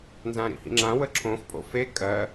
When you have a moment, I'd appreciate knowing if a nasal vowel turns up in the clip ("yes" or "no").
yes